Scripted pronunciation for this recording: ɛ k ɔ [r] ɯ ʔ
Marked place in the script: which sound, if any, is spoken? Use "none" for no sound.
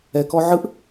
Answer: ʕ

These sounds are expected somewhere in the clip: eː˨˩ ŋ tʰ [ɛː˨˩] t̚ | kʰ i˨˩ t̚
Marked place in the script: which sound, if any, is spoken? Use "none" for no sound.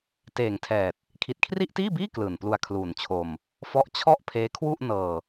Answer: ɛː˨˩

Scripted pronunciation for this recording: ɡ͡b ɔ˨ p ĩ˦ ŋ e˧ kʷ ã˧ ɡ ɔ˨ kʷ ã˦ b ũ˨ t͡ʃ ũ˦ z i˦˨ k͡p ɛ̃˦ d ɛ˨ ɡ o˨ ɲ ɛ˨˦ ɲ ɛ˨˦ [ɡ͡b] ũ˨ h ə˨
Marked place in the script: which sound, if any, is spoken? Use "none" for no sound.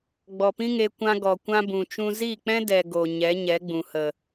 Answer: ɡ͡b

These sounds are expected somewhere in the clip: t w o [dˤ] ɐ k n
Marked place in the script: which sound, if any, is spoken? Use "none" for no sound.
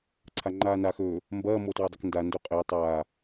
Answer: dˤ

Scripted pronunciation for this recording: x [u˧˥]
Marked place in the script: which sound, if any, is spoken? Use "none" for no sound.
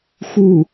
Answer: u˥˩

